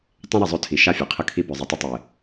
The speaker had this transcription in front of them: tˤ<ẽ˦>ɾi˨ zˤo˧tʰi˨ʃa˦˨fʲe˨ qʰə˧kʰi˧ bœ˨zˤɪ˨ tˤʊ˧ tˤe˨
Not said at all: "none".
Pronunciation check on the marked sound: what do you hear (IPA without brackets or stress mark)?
ẽ˦